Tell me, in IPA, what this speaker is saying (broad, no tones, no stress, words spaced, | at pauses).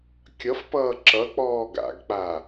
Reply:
kʲʌfpʌː ǁʌk͡pɔː ɡa̰ɡk͡pa